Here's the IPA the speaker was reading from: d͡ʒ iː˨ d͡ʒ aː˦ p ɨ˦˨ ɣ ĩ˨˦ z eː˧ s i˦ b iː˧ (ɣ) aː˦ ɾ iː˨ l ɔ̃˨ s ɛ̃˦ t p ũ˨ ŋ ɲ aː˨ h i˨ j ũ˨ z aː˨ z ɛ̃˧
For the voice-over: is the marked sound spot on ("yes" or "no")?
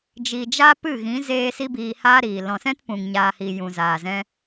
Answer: no